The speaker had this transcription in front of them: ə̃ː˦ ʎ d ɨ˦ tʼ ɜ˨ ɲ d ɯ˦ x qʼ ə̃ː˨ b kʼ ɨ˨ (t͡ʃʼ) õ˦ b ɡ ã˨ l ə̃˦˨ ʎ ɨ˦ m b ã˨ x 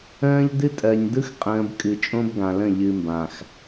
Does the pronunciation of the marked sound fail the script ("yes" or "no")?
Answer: no